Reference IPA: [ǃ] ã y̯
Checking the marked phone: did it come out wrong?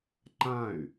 no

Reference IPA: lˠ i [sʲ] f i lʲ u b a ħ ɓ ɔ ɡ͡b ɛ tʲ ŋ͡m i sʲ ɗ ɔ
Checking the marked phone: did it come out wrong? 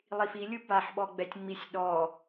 yes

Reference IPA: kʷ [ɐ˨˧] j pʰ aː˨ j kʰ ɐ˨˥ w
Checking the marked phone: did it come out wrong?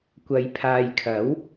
no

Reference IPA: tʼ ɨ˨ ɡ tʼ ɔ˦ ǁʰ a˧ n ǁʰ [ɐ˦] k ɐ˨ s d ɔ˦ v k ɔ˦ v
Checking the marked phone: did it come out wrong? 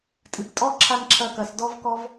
yes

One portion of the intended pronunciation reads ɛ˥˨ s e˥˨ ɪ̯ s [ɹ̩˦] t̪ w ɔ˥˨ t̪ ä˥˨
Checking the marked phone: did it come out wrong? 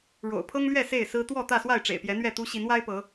no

